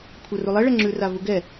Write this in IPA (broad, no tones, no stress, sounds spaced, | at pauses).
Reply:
kʷʰ œ r u lˠ ɛ ɭ ɛ ŋ͡ǁ ʉ r a v u ɡ ɛ